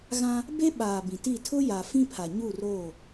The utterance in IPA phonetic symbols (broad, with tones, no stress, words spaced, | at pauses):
ɣã˦ | be˦ɓaː˨ bĩ˨ti˦˨ tʰʊ˦ja˨ fĩ˦pʰa˨ɲu˦˨ roː˦˨